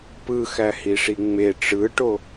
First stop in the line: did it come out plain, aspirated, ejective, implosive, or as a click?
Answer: plain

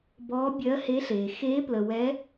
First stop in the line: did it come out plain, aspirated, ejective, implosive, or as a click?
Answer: plain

